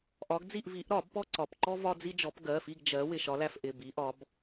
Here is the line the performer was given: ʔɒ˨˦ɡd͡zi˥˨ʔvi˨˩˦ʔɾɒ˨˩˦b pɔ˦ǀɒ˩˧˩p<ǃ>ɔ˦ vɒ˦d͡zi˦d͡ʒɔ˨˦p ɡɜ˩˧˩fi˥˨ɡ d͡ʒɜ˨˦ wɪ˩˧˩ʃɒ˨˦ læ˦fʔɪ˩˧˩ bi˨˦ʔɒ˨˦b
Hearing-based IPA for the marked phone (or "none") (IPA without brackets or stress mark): ǃ